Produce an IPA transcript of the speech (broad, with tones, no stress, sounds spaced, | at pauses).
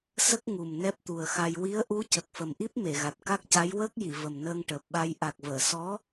s ə˦˥ k̚ ŋ u˨˩ m n ɛ˦˥ p̚ t̪ u˨˩ ə̯ x a˧ j w i˧˥ ə̯ ʔ u˧˥ c ə˨˩ k̚ f ə˨˩ m ʔ i˦˥ p̚ m e˨˩˨ ɣ a˨˩ t̚ k a˦˥ k̚ c a˧˥ j w əː˦˥ k̚ j i˨˩˨ v ə˨˩ m n əː˧ ŋ ʈ əː˨˩ p̚ ɓ a˧ j ʔ a˨˩ k̚ v əː˨˩˨ s ɔ˧˥